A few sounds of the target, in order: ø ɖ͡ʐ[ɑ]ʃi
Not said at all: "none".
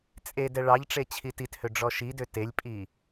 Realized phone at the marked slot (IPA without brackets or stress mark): ɔ